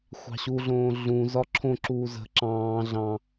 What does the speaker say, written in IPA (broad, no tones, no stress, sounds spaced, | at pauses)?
xʷ ɑ̤ ɕ u ɮ õː ɮ ũ z ɒ ǁʰ õ ǁ uː z ə̤ ǁ ɑ̃ː ɮ ɑ̃